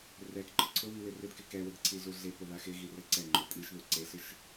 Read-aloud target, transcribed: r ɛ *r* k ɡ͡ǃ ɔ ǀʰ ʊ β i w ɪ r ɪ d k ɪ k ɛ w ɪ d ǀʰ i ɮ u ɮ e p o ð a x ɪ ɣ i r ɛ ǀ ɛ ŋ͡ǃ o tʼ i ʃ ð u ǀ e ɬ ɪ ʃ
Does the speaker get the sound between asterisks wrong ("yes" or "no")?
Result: yes